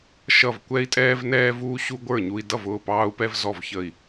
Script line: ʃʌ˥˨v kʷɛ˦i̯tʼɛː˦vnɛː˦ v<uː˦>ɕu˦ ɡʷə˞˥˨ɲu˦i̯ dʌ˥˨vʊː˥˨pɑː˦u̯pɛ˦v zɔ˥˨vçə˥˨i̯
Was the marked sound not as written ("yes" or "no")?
no